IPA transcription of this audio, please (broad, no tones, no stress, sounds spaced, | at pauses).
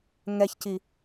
ŋ ɛ ç c i